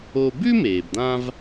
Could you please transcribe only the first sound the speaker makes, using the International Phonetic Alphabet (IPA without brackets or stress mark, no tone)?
o